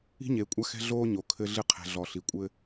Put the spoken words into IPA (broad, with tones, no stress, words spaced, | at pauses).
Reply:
i̤˦ɲeː˨kʷʼa˦ xɛ̤˦ ɮoː˦ ɲo˨kʰɘ˦ɮɨ˦ qʰɛ̤˨ɮɔ˨ ɬi˨kʷʼɘ˦